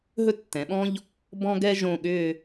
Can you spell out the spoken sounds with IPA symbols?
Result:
ɦ ɵ˥ tː ɛ̃˩˧ ɓ ɔ̃˥ ʎ | b ɔ̃˥ ɡ ɛ˥ ʒ õ˥˧ ɠ ʏ˥˧

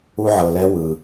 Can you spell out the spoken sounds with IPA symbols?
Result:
u˧ ʕ ɤ˨ l ɛ˦ w ɯ˧

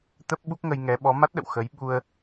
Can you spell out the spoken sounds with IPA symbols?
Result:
t̪ ə˦˥ p̚ ɓ u˦˥ k̚ ŋ ə˧ j ŋ ɛ˨˦ ɓ ɔ˨˦ m a˦˥ t̚ ɗ ə̰˧˨ w x ə˨˦ j ɓ u˧ ə̯

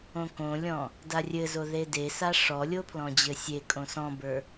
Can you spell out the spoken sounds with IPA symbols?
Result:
õ k õ lʲ ɔ̃ | d a rʲ ɘ z o ð e d e s a ʂ ɔ lʲ o pʰ l ɔ̃ d͡ʑ ɘ sʲ e kʼ õ s ɔ̃ b ə˞

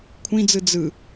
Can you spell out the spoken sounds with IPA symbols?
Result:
kʷʰ ĩ d͡z ɯ d͡z ɯ

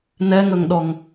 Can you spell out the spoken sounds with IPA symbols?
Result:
n ɛ ŋ ɵ ŋ ɗ ɔ ŋ

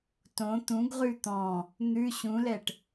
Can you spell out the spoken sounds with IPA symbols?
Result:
t õ t̪ ũ ɡ ʁ ʉ t̪ ɔ̃ | n̪ ʉ ɕ ũ l ɛ ʈ

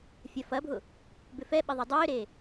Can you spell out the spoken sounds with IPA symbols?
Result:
fʲ ɐ f ɐ bʱ ʊ | b ʏ f ɛ ɓ ɪ ðˤ ʏ dˤ ʏː ɾ e

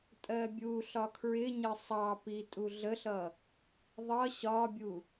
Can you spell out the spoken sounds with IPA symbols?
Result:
tʼ ɜ bʲ u ɬ ɒ kʰ ɹ ɪ ɲ ə sˤ ɑ p i tʼ u ɮ ə ɬ ʌ | ðˤ ʌ ɕ ɒ bʲ u

